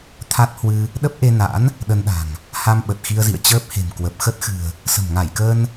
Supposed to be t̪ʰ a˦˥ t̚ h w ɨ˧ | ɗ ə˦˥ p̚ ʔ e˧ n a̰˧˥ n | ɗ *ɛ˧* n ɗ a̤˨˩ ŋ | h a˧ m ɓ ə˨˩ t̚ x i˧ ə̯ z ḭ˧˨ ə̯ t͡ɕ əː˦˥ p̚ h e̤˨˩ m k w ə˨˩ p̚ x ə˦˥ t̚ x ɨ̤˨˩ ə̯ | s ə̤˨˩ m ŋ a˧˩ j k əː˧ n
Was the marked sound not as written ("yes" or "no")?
yes